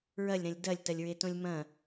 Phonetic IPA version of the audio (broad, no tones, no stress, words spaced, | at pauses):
ɹɐlʲɾɐ̃lʲ dɐlʲtɐlʲɹetõlʲ mɐ̃